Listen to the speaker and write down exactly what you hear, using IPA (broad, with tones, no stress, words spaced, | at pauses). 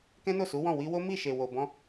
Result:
kɛ̃˦no˦˨su˨˦wɔ̃˦˨ wi˧wo˦mi˦˨ ʃe˨wo˨bɔ̃˧